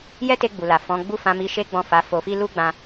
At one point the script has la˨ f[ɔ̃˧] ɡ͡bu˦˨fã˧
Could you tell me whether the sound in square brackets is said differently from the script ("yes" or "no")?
yes